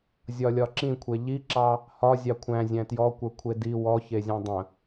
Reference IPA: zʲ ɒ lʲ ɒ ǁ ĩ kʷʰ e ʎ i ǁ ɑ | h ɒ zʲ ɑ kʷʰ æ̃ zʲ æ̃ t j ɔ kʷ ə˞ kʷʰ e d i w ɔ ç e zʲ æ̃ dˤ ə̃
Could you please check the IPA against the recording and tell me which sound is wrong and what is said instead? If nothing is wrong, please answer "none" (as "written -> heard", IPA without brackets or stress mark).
none